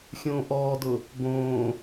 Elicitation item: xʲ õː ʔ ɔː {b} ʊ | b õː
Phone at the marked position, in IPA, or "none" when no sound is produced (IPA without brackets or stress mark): d